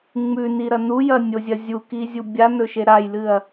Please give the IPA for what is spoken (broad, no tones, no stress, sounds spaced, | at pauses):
ŋ͡m ʉ n i ɾ ɐ n u j ɐ nʲ o zʲ ɐ zʲ u k i zʲ u bʲ a n ɵ ʃ e ɾ a j l ɨ ɐ̯